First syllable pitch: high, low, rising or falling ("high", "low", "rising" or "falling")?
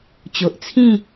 low